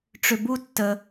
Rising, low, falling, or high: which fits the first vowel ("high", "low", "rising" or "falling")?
low